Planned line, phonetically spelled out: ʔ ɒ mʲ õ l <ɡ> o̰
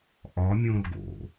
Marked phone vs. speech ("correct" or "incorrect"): correct